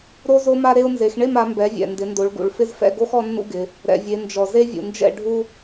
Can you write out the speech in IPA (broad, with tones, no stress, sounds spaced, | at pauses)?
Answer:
ɾ o˦ z o˦ m a˦ ɾ e˦ ʊ̯ n z e˩˧ x ɳ e˥˨ m a˩˧ m b ɛ˩˧ vʲ ɛ̰˩ n d ɪ˩˧ n d o˩˧ ɭ ɡ ṵ˩ ɭ f ɪ˦ z f ɛ̰˥˨ ɡ o˦ x ɔ˦ nː ṵ˦ ɡ ɪ˩˧ | ɾ ɛ̰˩ vʲ e˩˧ n d͡ʒ ɔ˩ z e˦ vʲ ṵ˩ n d͡ʒ ɛ̰˥˨ ɖʱ u˦